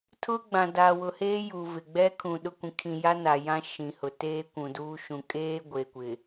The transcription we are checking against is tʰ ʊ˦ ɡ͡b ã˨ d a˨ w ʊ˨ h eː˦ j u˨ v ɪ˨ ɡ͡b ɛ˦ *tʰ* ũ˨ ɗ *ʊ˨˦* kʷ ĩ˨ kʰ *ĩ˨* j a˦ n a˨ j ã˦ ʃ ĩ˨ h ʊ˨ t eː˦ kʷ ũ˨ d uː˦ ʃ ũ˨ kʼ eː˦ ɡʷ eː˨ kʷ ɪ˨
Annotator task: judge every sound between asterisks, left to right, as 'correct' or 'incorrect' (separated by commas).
incorrect, incorrect, correct